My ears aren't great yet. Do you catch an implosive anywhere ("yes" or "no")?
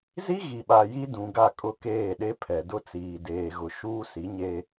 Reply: yes